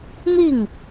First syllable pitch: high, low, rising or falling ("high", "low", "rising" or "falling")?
falling